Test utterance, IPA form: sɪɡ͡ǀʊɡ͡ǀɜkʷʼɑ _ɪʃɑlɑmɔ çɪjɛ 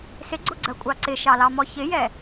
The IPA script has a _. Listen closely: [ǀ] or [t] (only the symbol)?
ǀ